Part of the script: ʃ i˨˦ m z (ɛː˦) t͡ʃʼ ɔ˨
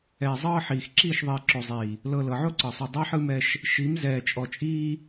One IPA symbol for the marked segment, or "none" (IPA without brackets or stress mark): ɛː˨